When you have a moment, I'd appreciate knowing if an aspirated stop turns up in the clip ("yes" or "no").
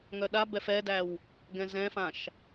no